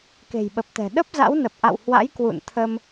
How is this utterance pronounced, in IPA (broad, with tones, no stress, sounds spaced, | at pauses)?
k e̤˨˩ j ɓ ə˨˩ p̚ t̪ ɛ̤˨˩ ɗ ə˦˥ p̚ z a̰˧˥ w n ə˨˩ p̚ ʔ a̰˧˨ w h w a̰˧˥ j k w ṵ˧˨ n t̪ʰ ə˧ m